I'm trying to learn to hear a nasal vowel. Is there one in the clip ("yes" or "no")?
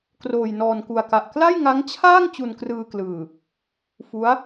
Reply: no